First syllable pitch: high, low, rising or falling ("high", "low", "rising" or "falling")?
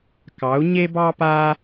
rising